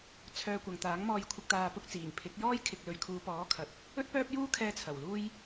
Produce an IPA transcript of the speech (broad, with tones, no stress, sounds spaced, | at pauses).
t͡sʰ œː˧ kʷ ɐ˨ ŋ t̪ aː˨˥ ŋ m ɔː˧ j kʷʰ ɪ˧ k̚ t̪ aː˧ p ʊ˥ k̚ t͡s iː˨˩ ŋ pʰ ɪ˨˥ k̚ j ɔː˥ j kʰ ɪ˨ k̚ l ɵ˨ ɥ kʰ uː˨˧ p ɔː˨˥ kʰ ɐ˨ t̚ | ɵ˥ t̚ p œː˥ p̚ j uː˥ kʰ ɛː˧ t͡sʰ ɐ˨˩ w l uː˥ j